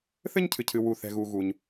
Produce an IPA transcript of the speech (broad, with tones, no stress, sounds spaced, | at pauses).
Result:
θ ɘ˥˧ ɲ cʰ ɨ˩ cʰ ɨ˩ w u˩ θ ɛ̤˩ ɣ u˩ ɣ u˩ ɲ